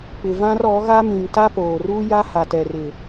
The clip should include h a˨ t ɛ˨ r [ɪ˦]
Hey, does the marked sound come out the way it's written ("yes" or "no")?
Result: no